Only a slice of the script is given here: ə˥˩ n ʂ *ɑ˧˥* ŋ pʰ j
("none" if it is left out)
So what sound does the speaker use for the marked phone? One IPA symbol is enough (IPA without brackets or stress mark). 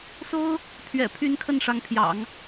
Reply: ɑ˧˥